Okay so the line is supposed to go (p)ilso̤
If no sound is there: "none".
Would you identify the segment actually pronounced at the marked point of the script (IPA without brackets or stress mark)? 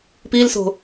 p